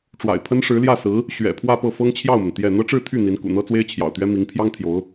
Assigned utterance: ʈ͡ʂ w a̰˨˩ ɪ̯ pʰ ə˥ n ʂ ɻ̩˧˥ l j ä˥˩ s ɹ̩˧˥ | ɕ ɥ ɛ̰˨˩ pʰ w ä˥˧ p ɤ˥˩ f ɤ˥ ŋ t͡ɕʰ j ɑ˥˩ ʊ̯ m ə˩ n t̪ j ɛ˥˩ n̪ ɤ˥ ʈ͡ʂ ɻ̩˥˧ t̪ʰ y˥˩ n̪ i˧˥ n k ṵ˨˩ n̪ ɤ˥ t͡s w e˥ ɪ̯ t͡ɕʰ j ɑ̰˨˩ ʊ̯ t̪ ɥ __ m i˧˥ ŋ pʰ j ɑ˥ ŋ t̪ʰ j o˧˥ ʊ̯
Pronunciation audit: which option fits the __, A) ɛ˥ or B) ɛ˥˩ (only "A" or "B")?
A